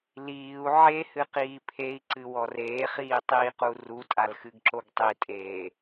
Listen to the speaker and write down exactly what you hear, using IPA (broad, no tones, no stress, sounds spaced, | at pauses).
l iː u̯ ʕ e h ɨ q iː pʰ e i̯ ǀ ɨ w ɔ r eː χ iː tˤ iː q u r u tʼ a l x ɨ ɡ ǁ o ɡ tˤ i tʼ eː